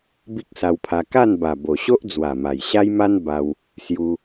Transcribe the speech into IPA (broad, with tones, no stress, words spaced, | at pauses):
bi˦k̚sa˧wpʰa˧ ka˥˧nba˨˩ bo˨˩ɕo˦ʔ d͡zwa˨˩ma˨˩jɕa˦jma˦n ba˧w | sju˧